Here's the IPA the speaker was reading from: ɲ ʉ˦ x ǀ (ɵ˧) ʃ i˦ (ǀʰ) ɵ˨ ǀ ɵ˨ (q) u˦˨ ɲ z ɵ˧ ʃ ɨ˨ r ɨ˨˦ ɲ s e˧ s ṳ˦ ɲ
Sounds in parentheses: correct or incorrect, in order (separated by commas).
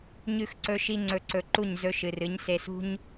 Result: incorrect, incorrect, incorrect